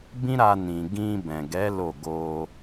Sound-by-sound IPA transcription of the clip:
bĩ˦ɾa˧nĩ˨ ɡĩ˧bɛ̃˨ɡɛ˨˦ lo˦˨ ɡo˧

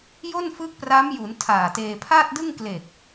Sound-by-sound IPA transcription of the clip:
jo˥˩nfɯː˦˥k̚pra˦˥mju˩˦n tʰaː˨˩teː˧ pʰa˥˩t̚dɯ˥˩ŋkle˨˩k̚

